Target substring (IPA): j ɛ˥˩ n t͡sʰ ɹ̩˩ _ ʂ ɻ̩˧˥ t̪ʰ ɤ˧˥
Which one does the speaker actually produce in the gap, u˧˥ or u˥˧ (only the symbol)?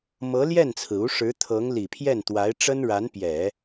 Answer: u˧˥